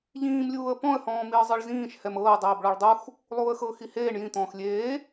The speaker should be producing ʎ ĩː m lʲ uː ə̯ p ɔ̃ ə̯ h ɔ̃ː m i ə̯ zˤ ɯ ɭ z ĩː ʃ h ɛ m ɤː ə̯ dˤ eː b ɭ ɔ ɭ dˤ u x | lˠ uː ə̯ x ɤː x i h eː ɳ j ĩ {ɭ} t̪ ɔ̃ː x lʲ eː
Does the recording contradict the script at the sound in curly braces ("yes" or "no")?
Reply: yes